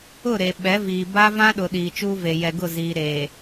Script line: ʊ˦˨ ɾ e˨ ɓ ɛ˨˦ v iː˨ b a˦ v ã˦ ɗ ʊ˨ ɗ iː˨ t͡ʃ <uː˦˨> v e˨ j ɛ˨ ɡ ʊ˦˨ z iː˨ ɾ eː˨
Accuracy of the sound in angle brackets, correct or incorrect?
incorrect: uː˦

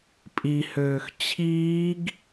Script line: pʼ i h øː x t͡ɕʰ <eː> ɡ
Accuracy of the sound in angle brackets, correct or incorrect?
incorrect: iː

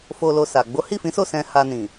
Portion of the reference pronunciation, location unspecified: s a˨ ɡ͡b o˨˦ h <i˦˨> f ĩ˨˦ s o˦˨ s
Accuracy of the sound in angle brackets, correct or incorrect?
correct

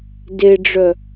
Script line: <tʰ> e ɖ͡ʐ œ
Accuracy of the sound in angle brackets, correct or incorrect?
incorrect: d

